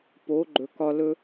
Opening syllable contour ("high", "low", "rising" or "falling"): rising